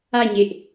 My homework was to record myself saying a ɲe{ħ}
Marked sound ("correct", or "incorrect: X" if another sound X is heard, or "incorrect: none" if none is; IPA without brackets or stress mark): incorrect: ʔ